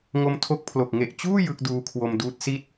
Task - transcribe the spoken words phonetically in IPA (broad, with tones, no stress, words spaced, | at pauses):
ŋo˧mtʰo˦˥k̚pʰlo˨˩k̚ ŋe˨˩ʔt͡ɕuː˥˩ jɯ˦˥k̚ duː˧kʰwo˧mduː˦˥t̚si˥˩t̚